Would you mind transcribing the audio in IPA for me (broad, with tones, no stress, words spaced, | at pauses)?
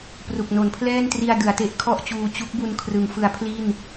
pru˨˩k̚no˩˦npʰlɛː˥˩ntri˧a̯ dɯ˩˦a̯te˦˥ʔkʰɔ˥˩ʔt͡ɕuː˧ t͡ɕu˦˥k̚bu˧n kʰrɯ˩˦ŋ fɯ˩˦a̯ pʰli˥˩n